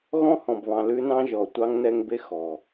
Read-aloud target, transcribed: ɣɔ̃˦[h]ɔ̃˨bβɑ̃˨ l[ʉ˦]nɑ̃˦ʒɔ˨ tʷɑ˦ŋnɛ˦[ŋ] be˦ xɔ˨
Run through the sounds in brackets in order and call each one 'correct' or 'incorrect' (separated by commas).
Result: correct, correct, correct